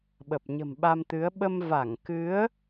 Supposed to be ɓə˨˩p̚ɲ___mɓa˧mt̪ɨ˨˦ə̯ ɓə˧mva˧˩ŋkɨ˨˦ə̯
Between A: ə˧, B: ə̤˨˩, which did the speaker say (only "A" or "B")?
B